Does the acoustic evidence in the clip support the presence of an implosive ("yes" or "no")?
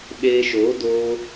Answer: yes